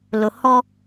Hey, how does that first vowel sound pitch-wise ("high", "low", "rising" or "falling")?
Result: low